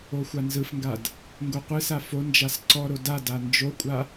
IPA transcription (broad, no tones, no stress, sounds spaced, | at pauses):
o xʷ a n z ɯ f ŋ ɡ a d | ŋ ɡ o qʷ ɯ s a f o n d͡ʒ a s ǀ ɔ ɾ o d a d a n d͡ʒ o kʷʼ a